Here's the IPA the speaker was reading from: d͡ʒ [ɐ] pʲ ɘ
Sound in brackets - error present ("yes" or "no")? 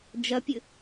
no